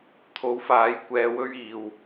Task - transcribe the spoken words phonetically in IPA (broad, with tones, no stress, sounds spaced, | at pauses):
t̪ʰ o˨˥ w f aː˨˥ j kʷ ɛː˧ w ɵ˥ ɥ iː˨ w